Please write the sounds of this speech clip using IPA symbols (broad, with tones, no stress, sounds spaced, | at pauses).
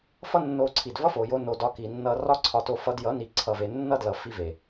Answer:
f ʌ˦ nː o˧ ǀʰ i˨ d v ʌ˦ f o˨ j o˧ n o˨ d ɒ˧ k i˨ nː ʌ˧ r ɒ˦ ǀʰ ɒ˧ t o˧ f ʌ˧ d j ʌ˨˦ n i˨ ǀʰ ʌ˨ v e˨ nː ʌ˦ d l ʌ˨ f i˧ v e˨